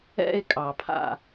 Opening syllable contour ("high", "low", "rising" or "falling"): high